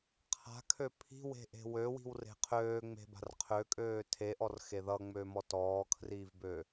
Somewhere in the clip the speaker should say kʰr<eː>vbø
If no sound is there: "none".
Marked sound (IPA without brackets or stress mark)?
iː